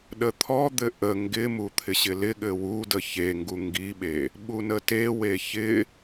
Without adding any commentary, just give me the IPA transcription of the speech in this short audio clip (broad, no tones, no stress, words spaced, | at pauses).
ɗət̪ʰɔd̪ɘ ʔə ŋɡɪmu t̪ʰɪɕɪlɪɠɘ wudə çeŋɡu ŋɡiɓe | ɓunətewe çɪ